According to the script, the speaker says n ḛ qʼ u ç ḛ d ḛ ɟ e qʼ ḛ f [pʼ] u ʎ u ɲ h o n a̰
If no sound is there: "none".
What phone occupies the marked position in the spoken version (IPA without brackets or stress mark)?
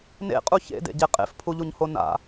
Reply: pʰ